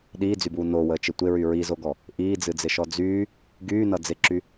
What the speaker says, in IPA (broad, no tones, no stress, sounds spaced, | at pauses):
ɗ iː d͡z y b uː n o w əː t͡ʃ ɪ tʷ ɪ ɹ y ɹ i z o ɡ ɔ | ʔ iː d͡z ɨ d͡z ɪ ʃ ɔ d͡z yː | ɡ yː n ʌ d͡z ɪ ǁ y